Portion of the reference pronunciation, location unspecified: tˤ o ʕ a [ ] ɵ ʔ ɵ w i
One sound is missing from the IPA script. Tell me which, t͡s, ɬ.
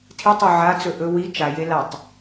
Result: t͡s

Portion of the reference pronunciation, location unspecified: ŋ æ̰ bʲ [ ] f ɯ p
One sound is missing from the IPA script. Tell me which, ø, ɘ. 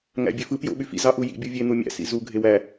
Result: ø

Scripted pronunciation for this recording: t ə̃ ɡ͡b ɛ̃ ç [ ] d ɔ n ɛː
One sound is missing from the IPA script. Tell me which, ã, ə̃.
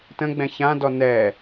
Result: ã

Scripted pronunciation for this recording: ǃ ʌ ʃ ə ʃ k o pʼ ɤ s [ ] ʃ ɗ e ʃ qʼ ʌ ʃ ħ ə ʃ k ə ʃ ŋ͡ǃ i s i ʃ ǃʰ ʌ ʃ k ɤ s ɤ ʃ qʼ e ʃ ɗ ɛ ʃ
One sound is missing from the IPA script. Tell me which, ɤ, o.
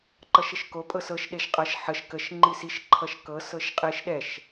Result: ɤ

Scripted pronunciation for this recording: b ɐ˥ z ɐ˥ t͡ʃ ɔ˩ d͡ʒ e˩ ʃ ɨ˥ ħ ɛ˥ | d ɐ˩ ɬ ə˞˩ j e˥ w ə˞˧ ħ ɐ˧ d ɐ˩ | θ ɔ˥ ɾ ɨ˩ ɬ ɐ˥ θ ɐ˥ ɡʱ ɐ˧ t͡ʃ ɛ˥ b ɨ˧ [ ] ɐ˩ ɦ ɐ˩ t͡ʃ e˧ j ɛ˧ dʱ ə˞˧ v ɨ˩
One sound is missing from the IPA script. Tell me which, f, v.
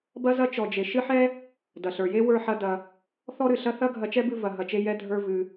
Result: v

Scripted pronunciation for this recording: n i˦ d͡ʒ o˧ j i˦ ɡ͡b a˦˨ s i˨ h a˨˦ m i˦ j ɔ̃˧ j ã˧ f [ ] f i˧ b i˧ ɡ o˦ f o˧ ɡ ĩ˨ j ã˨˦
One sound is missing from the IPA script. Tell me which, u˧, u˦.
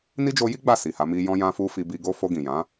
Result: u˧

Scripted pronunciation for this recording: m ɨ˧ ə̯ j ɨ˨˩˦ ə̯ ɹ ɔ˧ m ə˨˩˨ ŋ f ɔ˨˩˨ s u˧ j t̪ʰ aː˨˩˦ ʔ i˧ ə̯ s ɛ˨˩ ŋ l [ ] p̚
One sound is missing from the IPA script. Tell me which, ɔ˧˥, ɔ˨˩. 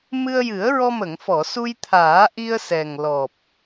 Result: ɔ˨˩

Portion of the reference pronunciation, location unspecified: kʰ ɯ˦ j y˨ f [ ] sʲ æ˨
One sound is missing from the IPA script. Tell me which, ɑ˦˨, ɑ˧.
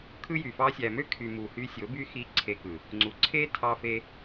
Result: ɑ˧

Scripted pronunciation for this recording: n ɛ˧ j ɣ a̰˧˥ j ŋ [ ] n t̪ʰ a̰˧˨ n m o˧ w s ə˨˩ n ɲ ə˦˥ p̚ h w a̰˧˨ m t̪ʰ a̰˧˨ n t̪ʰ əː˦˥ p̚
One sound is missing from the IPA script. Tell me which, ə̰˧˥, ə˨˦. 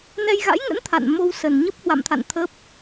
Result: ə̰˧˥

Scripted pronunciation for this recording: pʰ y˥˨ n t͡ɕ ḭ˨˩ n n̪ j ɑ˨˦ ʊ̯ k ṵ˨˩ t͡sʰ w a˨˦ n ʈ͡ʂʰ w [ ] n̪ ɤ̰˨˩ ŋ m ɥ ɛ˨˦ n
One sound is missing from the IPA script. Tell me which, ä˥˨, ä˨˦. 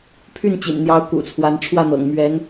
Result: ä˥˨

